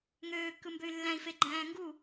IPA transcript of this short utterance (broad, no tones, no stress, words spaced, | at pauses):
ŋøːkːɯmbøy̯ lːæ̃i̯fe ɡ͡ǃæ̃ːŋɡu